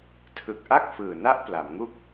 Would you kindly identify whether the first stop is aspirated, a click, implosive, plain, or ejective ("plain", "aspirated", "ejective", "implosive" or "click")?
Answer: aspirated